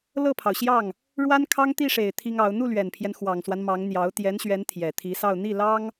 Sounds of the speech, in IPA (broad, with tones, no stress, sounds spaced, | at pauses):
l ɤ˥˩ pʰ ɑ˩ ʊ̯ ɕ j ɑ˥˩ ŋ | ɻ w a˥ n kʰ ɑ˥ ŋ t̪ i˥˩ ʂ e˨˩ ɪ̯ t̪ʰ i˥ ŋ ɑ˧˥ ʊ̯ n̪ u˥˩ l ɥ ɛ˨˩ n pʰ j ɛ˦ n x w ɑ˨˩ ŋ s w a˦ n m ɑ˧˥ ŋ n̪ j ɑ˧˥ ʊ̯ t̪ j ɛ˧˥ n ɕ ɥ ɛ˧˥ n t̪ʰ j ɛ˨˩ t̪ʰ i˧˥ s ɑ˥˧ ʊ̯ n̪ i˥˩ l ɑ˥ ŋ